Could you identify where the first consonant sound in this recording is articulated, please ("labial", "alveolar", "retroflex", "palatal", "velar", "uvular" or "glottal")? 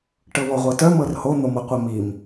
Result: retroflex